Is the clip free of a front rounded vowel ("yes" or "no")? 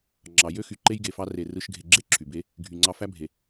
no